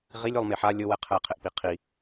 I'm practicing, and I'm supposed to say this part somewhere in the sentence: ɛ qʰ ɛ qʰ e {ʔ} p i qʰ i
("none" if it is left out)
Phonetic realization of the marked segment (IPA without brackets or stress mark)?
ʔ